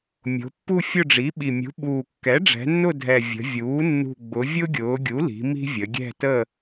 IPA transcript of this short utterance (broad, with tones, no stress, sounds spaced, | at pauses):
mʲ o̤˩˧ pː u˦˨ fʲ ʊ˦˨ ɖ͡ʐ i˩˥ ɓ i˨˩ mʲ ṳ˩˥ ɓ uː˨˩ kː ɛ˩˥ ɖ͡ʐ ɛ̤˩˧ nː ʊ˦˨ dʱ ɛ˨˩ vʲ ə̤˩˧ vʲ uː˩˥ nː ṳ˨˩ ɡ͡b ʊ˩˧ vʲ ʊ˦ ɡʲ ʊː˩˧ ɡʲ u˩˥ l i̤˩˧ m i̤˦ vʲ ə˩˧ ɡʲ ɛ̤˦˨ t ə˦˨